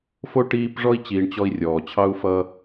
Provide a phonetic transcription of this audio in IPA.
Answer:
fo˥ʈiː˦pʐɔ˥i̯ t͡ɕiː˨ɳt͡ɕɔ˦i̯ rʲɔː˩t͡ɕʰɑ˥u̯fʌ˦

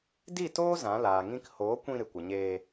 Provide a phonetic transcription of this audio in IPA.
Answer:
di˦˨toː˦ zã˨˦laː˨ŋĩ˦k hoː˨˦kʷĩ˧ ɾɨ˨kʷə˨ɲeː˧

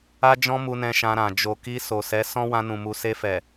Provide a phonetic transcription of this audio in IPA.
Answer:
a˦d͡ʒɔ̃˦mu˧nɛ̃˧ ʃã˧ɾã˨ d͡ʒo˨ki˧ so˨sɛ˨˦ sɔ̃˦ wã˧nũ˨ mu˨se˧ fɛ˨

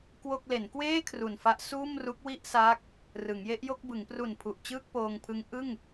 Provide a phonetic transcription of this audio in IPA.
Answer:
kwo˥˩k̚ le˩˦nkweː˥˩ kʰru˨˩nfa˦˥ʔ suː˥˩mru˦˥k̚wi˥˩ʔsaː˦˥k̚ | rɯ˩˦ŋje˦˥ʔjo˥˩k̚ bɯ˩˦ŋpru˨˩npʰu˨˩ʔ t͡ɕɯː˥˩k̚poː˧ŋpʰɯ˦˥ŋ ʔɯ˥˩ŋ

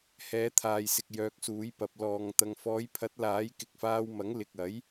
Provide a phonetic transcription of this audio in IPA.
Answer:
hɛː˨˧t̪ʰaː˨jsɪ˨k̚ jœː˧k̚suː˨˥jpɐ˨˥p̚ lɔː˨ŋ t̪ɐ˨ŋfɔː˨˧jpʰɐ˨˥t̚ laː˨˥j kɪ˨k̚faː˧wmɐ˨˥ŋ lɪ˨k̚ɐ˨˥j

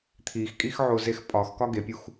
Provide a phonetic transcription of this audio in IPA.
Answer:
t̪ʰixkʼixʕozex pʼɒxkɒ ɡepʲux

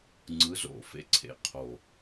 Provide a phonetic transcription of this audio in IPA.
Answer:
ŋ͡ǀɯ˨˥zo̰˨˩fḛ˨˥ ǀʰḛ˨˩qʰo˨˩

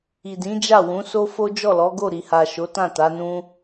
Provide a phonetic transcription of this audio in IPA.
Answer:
i˨dĩ˨˦d͡ʒa˦˨ wũ˨˦ so˦ fo˦ d͡ʒɔ˦˨lɔ˨˦ɡo˦˨ ɾi˨ha˨ʃo˨˦ tã˦˨ta˨˦nũ˦

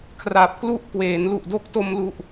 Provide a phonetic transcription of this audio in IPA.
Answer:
kʰra˨˩p̚klu˥˩ʔ kweː˩˦nlu˨˩ʔdo˥˩k̚ to˧mlu˨˩ʔ

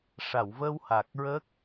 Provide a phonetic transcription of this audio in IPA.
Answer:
ʂa˨˩˨wvə˧wha˨˩k̚ɹə˦˥k̚

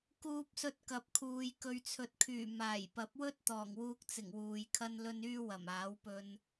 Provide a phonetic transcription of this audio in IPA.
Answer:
kuː˧p̚sɵ˧t̚kɐ˨p̚kʰuː˨j kɵ˨ɥt͡sʰɵ˨t̚kʰyː˨˩ maː˨˩jpɐ˨˥p̚wɵ˥t̚ t̪ɔː˨˩ŋwuː˧k̚t͡sɪ˨˩ŋ wuː˨jkʰɐ˥nlɵ˥n yː˥wɐ˨˩maː˨˥wpɵ˧n

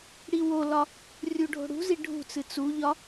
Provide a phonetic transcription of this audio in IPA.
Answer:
ɽiwolɒ | rʲuɖʱo̤ɽṳzi ɖʱṳt͡sɨ t͡suʎɒ

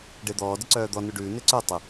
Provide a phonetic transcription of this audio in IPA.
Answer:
ɖed̪ɔː dəǀœːd̪ɔ nʉɖʉː neǀœ tˤə

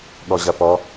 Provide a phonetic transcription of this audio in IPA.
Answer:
ɠɔʑɐpɔ

